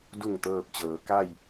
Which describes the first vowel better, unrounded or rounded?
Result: rounded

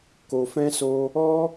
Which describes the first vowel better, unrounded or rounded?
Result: rounded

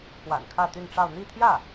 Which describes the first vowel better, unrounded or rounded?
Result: unrounded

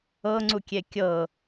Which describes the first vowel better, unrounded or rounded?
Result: unrounded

